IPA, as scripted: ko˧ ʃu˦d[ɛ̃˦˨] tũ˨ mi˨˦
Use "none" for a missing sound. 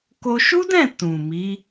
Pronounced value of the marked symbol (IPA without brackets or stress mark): ɛ̃˦˨